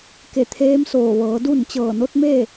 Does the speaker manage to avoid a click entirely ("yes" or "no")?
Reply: yes